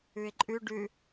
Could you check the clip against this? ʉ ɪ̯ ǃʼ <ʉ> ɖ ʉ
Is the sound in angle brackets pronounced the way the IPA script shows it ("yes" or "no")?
yes